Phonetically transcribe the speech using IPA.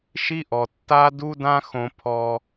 ʃi˦ʔɔ˨ tːa˦du˦dã˦ xõ˧pʰɔ˧

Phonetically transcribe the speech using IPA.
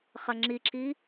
χɐŋ͡ǁiǁi

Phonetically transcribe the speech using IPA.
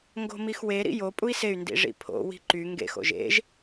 ŋɡo̤mixwe ɾḭjo pʼui̯sey̯ ndḭʐḭpʰo̰ wi̤ǃy ŋɡḛx o̰ʒḛʒ

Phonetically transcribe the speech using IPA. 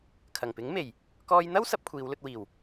kʰɐ˨˩ŋpɪ˨˥ŋme˨˩j | kɔː˥j n̪ɐ˥w sɐ˨˥p̚kʷʰiː˨˧wlɵ˧t̚wiː˨˩w

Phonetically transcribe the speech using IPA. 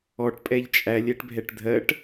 ɔʈ pʼɛʎt͡ʃʼæ lʲɛʈbʱɛʈdʱɜʈ

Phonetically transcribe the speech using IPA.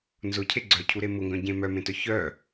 nzʊcʰe ɡ͡ǀœcʰuɾe mʊŋɡœ̃ɟẽ mœmẽtœ çœ

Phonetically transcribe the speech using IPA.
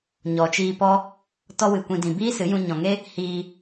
ɲɔ˨t͡ʃiː˧pɔ˦ | tɔ˦wɨ˨kʷĩ˧ dĩ˨biː˦sɨ˨˦jũ˧ ɲɔ̃˨ŋe˦ | hiː˧

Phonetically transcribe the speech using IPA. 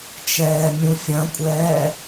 t͡ʃɛːmʲũfʲɐ̃kʷʼɛː

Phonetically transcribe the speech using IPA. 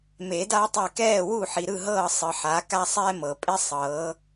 me˨˩˦da˦tˤɛ˦˨ kɛː˦˨wu˦˨ħi˨ɾɯ˦˨ ɦɤː˦˨sˤɯ˨ħa˨˦ ka˦sˤɛː˦mɤ˨ pʼe˦sˤɤː˨˦

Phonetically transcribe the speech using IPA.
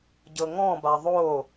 ɟɤŋɔ̃ba ðˤo

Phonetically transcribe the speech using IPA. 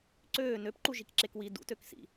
ǀøː nøpǃuʒikǁek wi dṵtøksḭ

